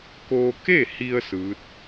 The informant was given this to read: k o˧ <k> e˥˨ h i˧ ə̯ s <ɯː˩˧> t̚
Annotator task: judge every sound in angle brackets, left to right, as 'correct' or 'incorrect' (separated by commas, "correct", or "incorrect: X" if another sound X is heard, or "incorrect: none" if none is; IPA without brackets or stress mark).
correct, incorrect: ɯː˧˥